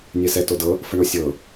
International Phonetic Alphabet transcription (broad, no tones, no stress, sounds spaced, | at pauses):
nʲ ɛ s ɛ t o d ɤ | f ə ɳ o sʲ ɤ